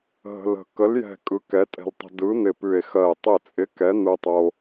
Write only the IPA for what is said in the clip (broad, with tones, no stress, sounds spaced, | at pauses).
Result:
ɦ ə̤˧ l ə̤˧˩ k ə˨˥ l j ɛ̤˧˩ kʼ ɯ˨˥ k ɛ˨˥ tʼ ɛ̤˧ l tˤ ə̤˧ d ɯ˨˥ n̪ ɪ˧˩ p ʉ˧˩ e̯ x ɜ˧˩ e̯ tˤ ɪ˧˩ t͡sʼ ɪ˨˥ k ɛ˨˥ n̪ ɯ˧ tˤ o˧